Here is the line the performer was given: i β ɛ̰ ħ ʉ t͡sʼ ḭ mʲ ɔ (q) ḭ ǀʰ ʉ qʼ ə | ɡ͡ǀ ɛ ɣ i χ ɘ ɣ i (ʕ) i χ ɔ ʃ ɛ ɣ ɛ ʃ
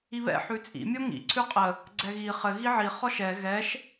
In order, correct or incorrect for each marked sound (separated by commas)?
incorrect, correct